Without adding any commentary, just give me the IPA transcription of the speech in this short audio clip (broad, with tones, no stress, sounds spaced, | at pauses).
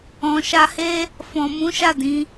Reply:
ɔ̃˨ ʃ a˧ h e˦ | f ɔ̃˨ m ũ˨˦ ʃ a˦˨ d ĩ˨˦